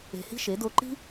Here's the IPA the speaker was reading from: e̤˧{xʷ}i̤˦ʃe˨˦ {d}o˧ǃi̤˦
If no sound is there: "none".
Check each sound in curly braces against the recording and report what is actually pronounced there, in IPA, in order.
h, d

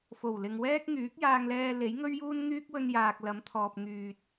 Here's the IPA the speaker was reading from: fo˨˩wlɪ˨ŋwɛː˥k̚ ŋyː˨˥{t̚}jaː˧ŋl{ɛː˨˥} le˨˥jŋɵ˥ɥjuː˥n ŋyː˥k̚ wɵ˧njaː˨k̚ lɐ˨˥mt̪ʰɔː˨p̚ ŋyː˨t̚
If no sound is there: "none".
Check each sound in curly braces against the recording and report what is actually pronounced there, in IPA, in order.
k̚, ɛː˧

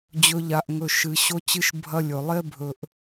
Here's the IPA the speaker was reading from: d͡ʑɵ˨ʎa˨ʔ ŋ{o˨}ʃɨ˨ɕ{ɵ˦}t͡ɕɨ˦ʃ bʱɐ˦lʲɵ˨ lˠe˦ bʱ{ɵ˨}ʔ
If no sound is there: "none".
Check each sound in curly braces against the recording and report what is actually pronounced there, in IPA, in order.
ɵ˨, o˦, ɵ˨

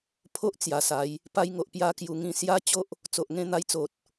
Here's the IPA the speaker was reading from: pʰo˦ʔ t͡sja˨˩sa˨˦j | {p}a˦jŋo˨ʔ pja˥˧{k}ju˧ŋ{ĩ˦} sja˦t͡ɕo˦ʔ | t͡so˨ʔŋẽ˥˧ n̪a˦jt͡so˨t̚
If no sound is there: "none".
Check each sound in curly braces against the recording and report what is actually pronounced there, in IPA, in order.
p, k, ĩ˦

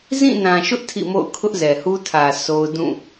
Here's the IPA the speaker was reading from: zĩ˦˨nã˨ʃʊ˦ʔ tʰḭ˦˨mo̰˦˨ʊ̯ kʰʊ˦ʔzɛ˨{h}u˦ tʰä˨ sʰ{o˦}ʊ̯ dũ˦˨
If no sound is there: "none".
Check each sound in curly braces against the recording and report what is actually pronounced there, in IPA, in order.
h, o˦

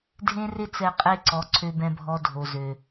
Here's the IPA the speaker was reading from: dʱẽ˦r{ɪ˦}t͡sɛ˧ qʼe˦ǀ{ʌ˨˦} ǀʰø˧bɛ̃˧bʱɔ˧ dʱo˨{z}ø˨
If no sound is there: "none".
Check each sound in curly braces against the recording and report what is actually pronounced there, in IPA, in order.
ɪ˦, ɔ˨˦, z

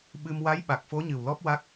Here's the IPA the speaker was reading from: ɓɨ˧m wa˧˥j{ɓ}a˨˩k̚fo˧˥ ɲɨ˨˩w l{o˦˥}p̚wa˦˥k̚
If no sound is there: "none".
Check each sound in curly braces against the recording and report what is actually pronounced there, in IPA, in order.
ɓ, ɔ˦˥

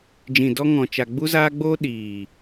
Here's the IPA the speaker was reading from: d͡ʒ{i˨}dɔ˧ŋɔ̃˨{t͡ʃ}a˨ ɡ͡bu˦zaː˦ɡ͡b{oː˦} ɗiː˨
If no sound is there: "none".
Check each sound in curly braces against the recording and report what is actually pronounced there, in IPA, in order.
ĩ˨, t͡ʃ, oː˦

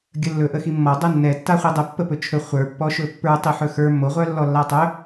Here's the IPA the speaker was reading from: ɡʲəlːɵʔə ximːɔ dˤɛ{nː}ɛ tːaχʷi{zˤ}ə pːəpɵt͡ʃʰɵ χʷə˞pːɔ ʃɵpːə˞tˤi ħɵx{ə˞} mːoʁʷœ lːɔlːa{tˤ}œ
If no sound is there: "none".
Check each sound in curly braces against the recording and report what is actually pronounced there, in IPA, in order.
nː, dˤ, ə˞, tˤ

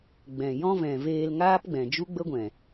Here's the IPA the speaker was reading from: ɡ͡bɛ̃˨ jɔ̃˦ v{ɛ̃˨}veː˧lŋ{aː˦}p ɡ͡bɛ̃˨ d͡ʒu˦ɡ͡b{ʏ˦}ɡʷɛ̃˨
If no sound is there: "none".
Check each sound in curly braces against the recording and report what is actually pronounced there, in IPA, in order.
ɛ̃˨, aː˦, ə˦

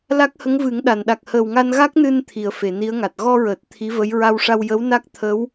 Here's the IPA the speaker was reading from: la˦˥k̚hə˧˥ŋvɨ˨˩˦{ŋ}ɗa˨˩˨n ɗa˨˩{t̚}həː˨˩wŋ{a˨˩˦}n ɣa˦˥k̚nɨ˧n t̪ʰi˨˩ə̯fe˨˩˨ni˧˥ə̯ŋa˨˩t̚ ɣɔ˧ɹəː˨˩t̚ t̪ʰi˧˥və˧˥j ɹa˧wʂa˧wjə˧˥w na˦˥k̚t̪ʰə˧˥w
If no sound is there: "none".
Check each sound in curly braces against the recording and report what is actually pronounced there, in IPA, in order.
ŋ, k̚, a˧

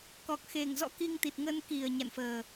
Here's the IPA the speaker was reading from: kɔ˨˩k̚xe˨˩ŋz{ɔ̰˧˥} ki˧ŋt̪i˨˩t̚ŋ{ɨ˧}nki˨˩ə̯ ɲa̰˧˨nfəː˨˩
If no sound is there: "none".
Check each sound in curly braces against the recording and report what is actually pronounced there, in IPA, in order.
ɔ̰˧˥, ə˧

